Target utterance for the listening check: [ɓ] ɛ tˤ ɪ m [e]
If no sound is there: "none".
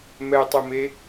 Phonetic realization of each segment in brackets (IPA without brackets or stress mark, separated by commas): m, e